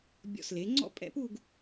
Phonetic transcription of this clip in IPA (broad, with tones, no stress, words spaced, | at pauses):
bʲɔ̰˧˩sle˩˧ ŋ͡ǀɔ̰˥pʼɛ̰˥˧pu˥˧ɡ